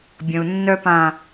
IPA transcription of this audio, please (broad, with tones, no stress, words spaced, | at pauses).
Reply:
bʲə̃˨u̯nːœ˧ pã˨